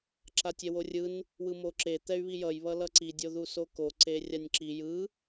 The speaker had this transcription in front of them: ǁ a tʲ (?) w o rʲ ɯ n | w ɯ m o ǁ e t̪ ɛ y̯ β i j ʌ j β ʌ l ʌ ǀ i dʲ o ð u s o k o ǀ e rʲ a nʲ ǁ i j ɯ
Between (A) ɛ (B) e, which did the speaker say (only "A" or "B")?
A